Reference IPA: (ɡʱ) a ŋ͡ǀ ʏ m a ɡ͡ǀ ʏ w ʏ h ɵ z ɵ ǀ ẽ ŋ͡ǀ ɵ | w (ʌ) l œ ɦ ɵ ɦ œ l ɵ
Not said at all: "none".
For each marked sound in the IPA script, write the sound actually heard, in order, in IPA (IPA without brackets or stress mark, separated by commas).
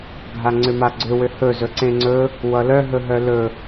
ɡʱ, ʌ